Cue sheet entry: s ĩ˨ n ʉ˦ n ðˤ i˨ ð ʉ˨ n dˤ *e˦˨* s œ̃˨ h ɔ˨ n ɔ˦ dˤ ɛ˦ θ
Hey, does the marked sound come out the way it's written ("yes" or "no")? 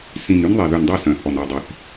no